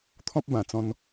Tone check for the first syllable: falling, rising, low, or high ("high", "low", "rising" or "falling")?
high